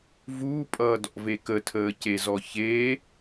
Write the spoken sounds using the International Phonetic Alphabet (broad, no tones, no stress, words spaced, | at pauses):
vuːpʼʌːdɔ̰ve kətʰəːcezɔ çeː